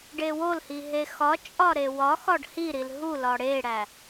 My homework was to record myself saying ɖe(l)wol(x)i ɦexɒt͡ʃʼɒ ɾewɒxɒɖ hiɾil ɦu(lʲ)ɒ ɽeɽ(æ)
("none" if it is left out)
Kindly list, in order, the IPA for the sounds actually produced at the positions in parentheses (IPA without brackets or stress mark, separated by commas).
none, h, l, æ